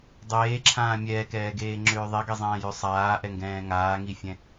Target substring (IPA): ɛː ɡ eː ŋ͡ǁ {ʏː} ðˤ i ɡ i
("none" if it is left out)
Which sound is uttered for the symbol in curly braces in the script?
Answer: ʏː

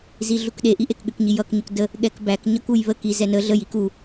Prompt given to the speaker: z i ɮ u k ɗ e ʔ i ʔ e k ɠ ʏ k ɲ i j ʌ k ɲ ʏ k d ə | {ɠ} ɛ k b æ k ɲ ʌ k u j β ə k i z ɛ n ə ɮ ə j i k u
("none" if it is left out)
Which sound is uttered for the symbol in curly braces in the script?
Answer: ɠ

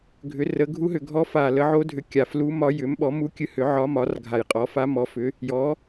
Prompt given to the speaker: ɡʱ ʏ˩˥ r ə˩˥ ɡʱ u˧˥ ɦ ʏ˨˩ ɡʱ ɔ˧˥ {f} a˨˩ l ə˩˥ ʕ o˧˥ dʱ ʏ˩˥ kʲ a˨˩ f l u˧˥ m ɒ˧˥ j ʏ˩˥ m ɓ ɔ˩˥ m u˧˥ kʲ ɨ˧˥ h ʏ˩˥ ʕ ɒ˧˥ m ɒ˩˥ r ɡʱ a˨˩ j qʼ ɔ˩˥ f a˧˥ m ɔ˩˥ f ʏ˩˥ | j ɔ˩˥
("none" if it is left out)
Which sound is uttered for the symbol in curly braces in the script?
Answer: f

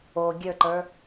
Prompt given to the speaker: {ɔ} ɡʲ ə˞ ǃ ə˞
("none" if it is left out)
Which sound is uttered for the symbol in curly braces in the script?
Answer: o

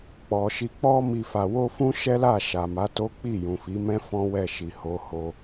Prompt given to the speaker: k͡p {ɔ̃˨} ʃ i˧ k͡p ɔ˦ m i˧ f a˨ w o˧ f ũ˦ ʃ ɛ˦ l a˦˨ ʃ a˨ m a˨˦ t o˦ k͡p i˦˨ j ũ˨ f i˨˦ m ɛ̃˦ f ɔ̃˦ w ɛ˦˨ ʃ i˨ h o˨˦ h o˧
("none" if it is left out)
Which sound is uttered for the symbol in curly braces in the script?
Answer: ɔ˨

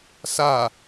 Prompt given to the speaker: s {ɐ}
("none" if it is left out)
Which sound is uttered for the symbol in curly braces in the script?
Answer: a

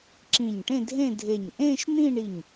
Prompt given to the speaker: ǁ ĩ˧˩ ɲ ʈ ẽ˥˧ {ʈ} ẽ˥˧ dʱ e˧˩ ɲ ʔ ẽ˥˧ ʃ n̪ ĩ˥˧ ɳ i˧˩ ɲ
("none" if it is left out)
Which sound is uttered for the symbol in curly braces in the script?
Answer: dʱ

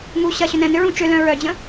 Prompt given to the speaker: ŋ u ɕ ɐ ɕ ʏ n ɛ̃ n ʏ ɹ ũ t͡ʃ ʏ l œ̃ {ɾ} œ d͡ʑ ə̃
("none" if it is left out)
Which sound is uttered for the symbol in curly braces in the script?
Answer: ɹ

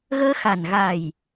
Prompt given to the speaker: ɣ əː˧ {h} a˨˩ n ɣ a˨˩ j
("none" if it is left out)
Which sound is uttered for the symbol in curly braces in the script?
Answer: x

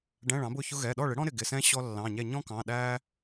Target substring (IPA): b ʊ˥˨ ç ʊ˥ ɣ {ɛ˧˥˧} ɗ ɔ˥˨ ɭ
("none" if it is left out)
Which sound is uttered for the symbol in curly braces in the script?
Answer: ɛ˩˧˩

